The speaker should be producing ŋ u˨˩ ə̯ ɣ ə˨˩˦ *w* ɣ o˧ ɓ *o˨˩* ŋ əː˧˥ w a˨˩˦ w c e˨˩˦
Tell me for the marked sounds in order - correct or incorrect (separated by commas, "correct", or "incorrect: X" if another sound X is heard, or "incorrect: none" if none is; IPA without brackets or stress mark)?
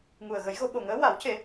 incorrect: j, correct